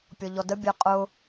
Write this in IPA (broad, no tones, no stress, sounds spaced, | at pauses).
pʲ ɔ ʎ ɔ d ə bʲ ə qʼ ʊ